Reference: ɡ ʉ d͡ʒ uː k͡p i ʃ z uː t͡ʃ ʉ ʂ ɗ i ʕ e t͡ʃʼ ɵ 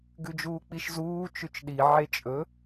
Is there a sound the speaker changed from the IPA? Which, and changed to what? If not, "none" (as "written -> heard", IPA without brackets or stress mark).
ʂ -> t͡ʃ